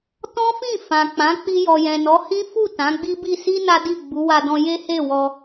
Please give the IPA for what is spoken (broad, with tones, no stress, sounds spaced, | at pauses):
t ɔ̃˦ f ĩ˦˨ f ã˨ k͡p ã˨˦ k͡p i˧ j ɔ˨ j ɛ̃˨ n ɔ˨˦ h ĩ˦ f u˦˨ t ã˨˦ ɡ͡b i˦ b i˦˨ s i˧ n a˦ d i˦˨ ɡ͡b u˨˦ w a˧ d ɔ̃˧ j e˦ h e˦˨ w ɔ˧